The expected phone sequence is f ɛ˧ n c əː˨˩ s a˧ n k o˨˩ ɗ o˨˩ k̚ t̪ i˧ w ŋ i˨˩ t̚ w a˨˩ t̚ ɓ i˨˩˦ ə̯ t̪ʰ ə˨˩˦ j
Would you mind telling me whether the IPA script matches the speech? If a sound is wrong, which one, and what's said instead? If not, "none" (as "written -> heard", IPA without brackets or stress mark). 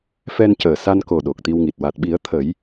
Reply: none